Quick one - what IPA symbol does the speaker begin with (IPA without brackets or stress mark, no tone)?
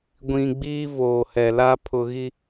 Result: ɡʷ